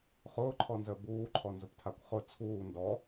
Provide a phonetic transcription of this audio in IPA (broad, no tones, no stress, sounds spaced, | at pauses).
χ ʊː ǃʰ ɔ n z əː b uː ǃʰ ɔ n z ʊ p tʰ a kʷ χ ʊ t͡sʰ uː n d ɔ